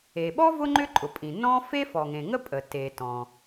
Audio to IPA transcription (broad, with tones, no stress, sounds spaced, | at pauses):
e˩ ɓ ɔ˥ v ʊ˥ ŋ͡ǃ ʏ˥ ǃʼ ʊ˩ pʼ ĩ˩ n ɔ̃˥ f e˥ f ɔ˩ ŋ ẽ˩ ŋ ə˥ pʼ ə˩ t e˩ t ɔ̃˩